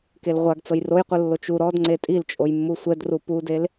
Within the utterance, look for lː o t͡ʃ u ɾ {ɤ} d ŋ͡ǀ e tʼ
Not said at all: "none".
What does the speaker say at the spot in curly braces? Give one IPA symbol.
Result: ɔ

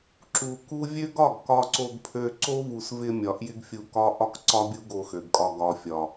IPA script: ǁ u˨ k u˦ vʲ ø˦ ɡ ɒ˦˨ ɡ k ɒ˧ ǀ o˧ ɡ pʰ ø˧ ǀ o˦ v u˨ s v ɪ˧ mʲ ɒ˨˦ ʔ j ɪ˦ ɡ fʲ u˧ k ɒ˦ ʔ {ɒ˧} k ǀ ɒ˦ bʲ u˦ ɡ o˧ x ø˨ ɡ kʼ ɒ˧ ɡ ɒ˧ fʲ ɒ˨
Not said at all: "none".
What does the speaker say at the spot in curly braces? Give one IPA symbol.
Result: ɒ˦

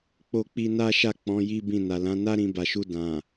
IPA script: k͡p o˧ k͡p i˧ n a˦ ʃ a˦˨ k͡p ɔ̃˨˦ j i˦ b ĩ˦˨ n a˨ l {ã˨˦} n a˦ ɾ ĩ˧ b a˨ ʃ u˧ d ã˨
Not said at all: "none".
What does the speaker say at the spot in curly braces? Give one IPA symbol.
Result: ã˨˦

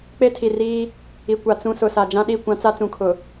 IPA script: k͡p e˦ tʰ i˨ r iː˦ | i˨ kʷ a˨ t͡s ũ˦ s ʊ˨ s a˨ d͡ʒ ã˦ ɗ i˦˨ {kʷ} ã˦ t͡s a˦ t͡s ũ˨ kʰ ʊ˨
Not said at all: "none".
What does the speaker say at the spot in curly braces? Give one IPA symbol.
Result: kʷ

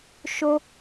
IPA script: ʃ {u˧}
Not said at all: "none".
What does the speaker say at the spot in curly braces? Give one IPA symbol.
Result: o˧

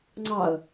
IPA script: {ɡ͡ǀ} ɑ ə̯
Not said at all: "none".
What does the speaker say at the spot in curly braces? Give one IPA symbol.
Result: ŋ͡ǀ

